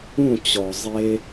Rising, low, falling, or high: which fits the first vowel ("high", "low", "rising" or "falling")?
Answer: falling